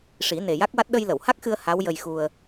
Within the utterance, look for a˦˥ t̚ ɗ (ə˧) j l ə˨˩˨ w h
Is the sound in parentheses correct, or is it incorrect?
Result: correct